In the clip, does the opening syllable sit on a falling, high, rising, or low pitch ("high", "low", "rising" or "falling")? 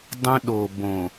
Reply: high